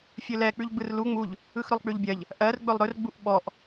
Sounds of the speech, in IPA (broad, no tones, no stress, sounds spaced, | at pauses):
fʲ ɵ l ɛ k͡p ʉ ʎ ɡ͡b ɯ r l u ŋ͡m u ʎ | ɯ x ɾ ɵ lˠ k͡p ʉ ʎ bʲ ɜ ʎ | ʔ ɜ r ɡ͡b ɵ lˠ ɾ ɵ r ɡ͡b u ʔ ɓ ɔ ʔ